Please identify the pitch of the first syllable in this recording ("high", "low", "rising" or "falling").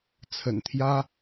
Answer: low